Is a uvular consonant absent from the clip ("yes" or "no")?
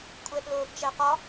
no